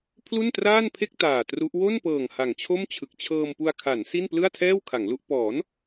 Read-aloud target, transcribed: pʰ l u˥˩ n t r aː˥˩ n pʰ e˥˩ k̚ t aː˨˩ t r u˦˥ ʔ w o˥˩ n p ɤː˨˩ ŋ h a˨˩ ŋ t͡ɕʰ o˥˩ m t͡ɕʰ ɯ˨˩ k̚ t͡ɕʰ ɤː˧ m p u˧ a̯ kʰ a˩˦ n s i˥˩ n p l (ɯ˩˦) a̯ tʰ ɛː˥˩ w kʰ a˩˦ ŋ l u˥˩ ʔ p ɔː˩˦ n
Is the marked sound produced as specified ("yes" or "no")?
no